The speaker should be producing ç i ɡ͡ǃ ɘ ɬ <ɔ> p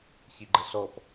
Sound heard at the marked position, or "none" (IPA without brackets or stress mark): ɔ